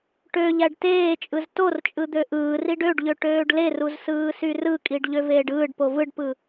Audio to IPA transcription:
ʈø ʎæɖteːt͡ʃʼɯz tort͡ʃʼɯ d̪øʔɯːriɖ øɖʎø ʈøːɖleruz sɯːsyrɯkʼiɖ ʎøveːɖɯːɖpo vɯɖpɯ

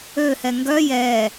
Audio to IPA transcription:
øhɛ ŋɡœ jɛ

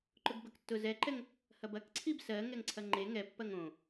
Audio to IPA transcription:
ǃʊɡbɐktːʊ zɛǃɛŋ | hɐbɐkǀʰib sɜ ŋɛŋǀʰɐŋ͡ǃe ŋɛpːɐŋ õ

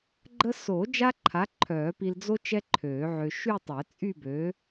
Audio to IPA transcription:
ɡ͡ǃə˥ so˨˩˦ d͡ʒa˥ǃʰa˨˥ ǃʰœː˨˩˦pi˧l d͡zo˥ t͡ʃɛ˥ǃʰøː˨˩˦ʕø˧ ʃy˥˧tˤɛ˨˩˦t͡sʼy˥˧ bø˨˥

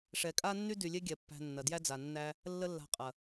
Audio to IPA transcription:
ʂɛ˧ kʼa˦nːy˦ dy˨lʲe˦ɡʲɛ˨ pːæ̤˧nːɐ˨ djæ˦d͡za˨nːæ˦ | lːə˦lːa̤˧qʼɐ˨

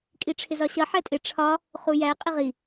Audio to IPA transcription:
kʼiʈ͡ʂʰɪzɒɕʌ ħɛtʼɪ ʈ͡ʂʰɒ | χujæ qʼɪʁi

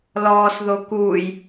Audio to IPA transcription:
lɔːsðo kuːj

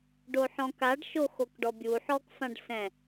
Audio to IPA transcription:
ɖoħɔ̃kaɖ ʃoxokɖɔbʲu ħɔkfãɖsɛ̃

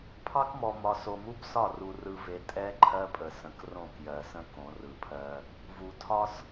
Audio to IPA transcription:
pʰɑ˦kmɔ˨ mɒ˨so˨mu˦bsɒ˦˨ ru˨rɯ˨ ve˨ tʼɛ˦ ǃʰɜ˦pʼə˨sə̃˨k rõ˦˨kjɜ˨sə̃˦ kõ˨˦rɯ˨pʰɜ˦ | vu˨tʰɒ˦s

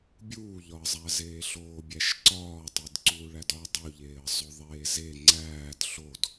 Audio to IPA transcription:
bʲuːʎɒə̯zˤæzeː ɬoːbʲæʃǀɒː tˤidǀuːɭædɒ dˤuʎeːə̯zˤo ðˤeːze ŋ͡ǀæːd ɬod

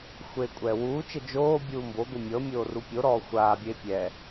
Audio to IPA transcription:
xʷeːkʷʼɛːwuːt͡ʃɛ d͡ʒoːbʲuː mboɡʷi mʲɤ mʲoːrupʲoɾɔː xʷaːbʲeː pʲɛ

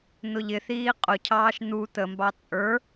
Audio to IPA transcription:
n̪ʊʎɪθiː qʼʊcʰɑːʃ n̪u t̪əmbɑ t͡sʼə˞

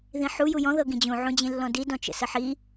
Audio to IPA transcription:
ðĩħu jujɔ̃ ðɤɡĩd͡ʑũ ʕũd͡ʑĩlːɔ̃di dɔ̃t͡ʃə̰səħi

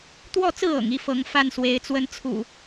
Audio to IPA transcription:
t̪wɔ˥˨t͡sɹ̩˥˨ɤ̰˨˩ŋ i˥˨fɤ˨˦ŋfa˥˨n swe˨˦ɪ̯t͡swə˦n t͡sʰṵ˨˩

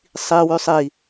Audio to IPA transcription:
sˤiwʉsˤ i

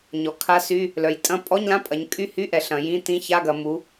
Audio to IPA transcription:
ɲɔ˩˧kʰa˧˥˧sy˧˥˧ | lœ˩˧jtʼɐ̃˧˥˧ pʼɔ˧˥˧ɲlã˧˥˧pʼɐ˩˧ɲ kʼy˧˥˧hy˧˥˧ʔɛ˩˧ ɬɐ̃˩˧jĩ˧˥˧ tĩ˧˥˧ça˧˥˧ɡɐ˩˧ mu˩˧

